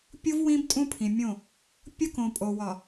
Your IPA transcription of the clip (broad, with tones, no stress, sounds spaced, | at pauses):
pʲ u˦ v w ĩ˦ b tʼ ũ˦ pʰ ĩ˨ mʲ õ˦˨ | pʲ o˦ k õ˨ pʼ o˨ w ɒ˨